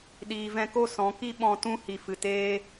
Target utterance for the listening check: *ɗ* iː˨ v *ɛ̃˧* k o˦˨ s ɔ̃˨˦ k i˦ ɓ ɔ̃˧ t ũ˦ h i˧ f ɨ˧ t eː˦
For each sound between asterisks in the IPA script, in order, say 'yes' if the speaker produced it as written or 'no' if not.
yes, yes

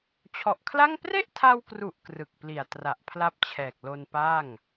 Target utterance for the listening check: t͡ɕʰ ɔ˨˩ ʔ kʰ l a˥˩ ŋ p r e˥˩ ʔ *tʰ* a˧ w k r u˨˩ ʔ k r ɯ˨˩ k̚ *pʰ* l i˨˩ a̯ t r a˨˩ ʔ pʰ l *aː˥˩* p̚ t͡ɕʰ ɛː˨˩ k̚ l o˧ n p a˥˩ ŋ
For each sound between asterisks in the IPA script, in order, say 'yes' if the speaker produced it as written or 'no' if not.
yes, no, no

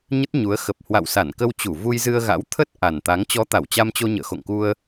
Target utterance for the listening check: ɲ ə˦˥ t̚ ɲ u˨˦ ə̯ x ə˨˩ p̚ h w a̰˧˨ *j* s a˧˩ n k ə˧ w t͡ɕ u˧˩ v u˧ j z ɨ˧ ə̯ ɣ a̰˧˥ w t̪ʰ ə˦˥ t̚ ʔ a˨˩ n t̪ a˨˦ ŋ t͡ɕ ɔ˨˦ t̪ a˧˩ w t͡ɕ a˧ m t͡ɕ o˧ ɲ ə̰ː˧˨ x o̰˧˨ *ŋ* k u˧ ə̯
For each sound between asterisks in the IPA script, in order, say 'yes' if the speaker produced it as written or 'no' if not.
no, yes

